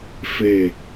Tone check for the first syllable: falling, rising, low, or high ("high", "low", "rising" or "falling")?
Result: falling